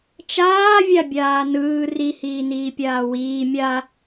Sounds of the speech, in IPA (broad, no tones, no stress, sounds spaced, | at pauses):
t͡ʃ aː vʲ a bʲ aː n ɯː r i h iː n iː pʲ aː w iː mʲ a